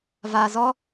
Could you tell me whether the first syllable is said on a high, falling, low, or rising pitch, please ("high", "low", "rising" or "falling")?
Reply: low